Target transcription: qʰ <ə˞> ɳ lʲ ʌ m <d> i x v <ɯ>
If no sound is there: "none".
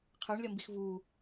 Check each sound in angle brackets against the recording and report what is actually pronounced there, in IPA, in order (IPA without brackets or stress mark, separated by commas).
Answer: ə˞, b, u